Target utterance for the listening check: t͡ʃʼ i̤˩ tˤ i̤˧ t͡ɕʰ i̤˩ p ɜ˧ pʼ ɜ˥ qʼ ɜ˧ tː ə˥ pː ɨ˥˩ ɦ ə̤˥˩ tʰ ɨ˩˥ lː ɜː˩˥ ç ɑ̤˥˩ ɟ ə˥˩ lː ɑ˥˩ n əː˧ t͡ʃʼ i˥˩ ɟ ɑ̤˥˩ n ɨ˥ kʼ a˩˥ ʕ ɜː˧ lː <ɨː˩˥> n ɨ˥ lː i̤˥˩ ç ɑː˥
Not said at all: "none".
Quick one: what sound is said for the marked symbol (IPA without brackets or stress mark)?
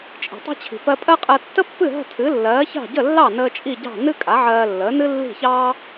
əː˩˥